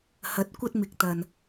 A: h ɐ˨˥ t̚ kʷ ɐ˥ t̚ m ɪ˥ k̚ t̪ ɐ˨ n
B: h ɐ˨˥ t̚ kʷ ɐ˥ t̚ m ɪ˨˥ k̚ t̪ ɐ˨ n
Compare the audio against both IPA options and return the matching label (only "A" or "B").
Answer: B